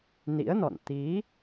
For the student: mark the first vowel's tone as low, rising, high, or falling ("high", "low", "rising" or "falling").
rising